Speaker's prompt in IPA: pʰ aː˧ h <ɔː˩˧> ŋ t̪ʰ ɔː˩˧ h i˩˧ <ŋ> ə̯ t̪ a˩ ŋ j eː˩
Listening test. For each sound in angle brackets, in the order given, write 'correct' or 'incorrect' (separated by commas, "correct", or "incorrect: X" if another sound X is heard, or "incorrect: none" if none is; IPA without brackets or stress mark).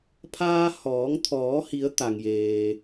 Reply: correct, incorrect: none